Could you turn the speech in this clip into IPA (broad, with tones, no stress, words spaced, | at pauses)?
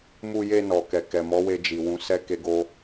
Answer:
mu˧je˧ nɔ˨kɛ˨kɛ˨ mɔ˨˦we˧ d͡ʒi˨wũ˨˦sɛ˦ ke˦ɡo˦